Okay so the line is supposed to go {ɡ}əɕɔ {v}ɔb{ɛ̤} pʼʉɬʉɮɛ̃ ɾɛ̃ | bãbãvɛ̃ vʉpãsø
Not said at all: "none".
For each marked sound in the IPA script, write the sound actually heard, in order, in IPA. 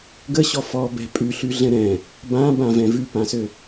ɡ, f, ɛ̤

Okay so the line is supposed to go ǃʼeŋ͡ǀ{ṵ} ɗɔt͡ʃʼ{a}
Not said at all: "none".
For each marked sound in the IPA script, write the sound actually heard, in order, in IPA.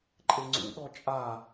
ṵ, a

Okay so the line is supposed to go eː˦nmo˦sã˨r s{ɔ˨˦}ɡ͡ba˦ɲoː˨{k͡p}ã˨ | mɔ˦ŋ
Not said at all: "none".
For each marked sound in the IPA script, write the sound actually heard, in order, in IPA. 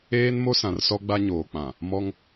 ɔ˦, k͡p

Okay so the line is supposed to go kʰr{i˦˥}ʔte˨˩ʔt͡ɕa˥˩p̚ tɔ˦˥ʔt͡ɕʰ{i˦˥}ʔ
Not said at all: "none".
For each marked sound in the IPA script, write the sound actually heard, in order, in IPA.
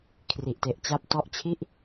i˨˩, i˥˩

